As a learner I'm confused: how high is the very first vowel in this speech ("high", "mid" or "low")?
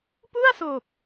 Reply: high